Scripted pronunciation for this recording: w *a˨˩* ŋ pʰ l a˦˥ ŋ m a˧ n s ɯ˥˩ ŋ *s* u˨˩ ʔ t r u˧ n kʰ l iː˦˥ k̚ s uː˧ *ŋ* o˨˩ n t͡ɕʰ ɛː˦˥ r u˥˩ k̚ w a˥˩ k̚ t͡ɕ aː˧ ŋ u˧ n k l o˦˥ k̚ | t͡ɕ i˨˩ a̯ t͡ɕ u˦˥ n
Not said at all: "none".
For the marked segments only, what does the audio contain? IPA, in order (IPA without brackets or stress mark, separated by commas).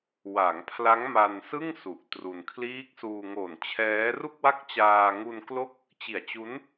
a˩˦, s, ŋ